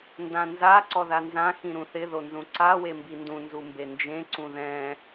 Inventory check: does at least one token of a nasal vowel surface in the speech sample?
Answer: yes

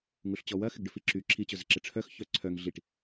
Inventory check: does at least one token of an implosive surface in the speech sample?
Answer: no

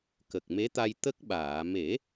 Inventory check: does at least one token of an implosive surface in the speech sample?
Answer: yes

